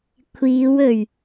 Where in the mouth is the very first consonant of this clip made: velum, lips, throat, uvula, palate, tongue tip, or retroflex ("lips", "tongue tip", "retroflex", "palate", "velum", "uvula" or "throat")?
velum